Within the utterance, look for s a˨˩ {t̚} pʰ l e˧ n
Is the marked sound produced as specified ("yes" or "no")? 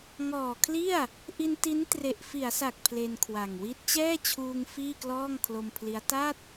no